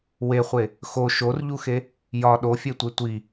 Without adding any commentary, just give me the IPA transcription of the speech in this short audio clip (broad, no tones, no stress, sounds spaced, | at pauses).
w e χʷ e | x o ʃ o r ʎ u x e | j ɒ ɗ o fʲ e tʷ e tʷ i